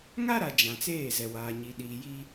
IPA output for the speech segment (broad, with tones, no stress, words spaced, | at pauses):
ŋa˦ɾa˨ d͡ʒã˨t͡seː˦˨zɛ˨ waː˨ɲi˨ɗiː˨ jiː˦